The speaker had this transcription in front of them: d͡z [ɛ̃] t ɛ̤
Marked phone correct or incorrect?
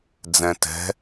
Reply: correct